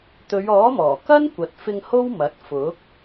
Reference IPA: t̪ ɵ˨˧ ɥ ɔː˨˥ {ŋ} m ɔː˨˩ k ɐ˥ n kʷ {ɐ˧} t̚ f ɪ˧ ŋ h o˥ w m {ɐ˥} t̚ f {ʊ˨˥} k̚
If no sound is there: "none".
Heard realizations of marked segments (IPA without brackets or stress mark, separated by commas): none, ɐ˨, ɐ˨˥, ʊ˨˥